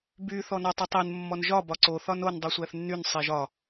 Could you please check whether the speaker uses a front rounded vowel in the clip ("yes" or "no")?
yes